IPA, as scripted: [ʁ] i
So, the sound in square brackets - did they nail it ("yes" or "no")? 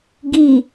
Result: no